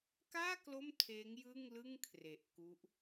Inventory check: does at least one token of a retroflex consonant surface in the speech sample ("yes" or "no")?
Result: no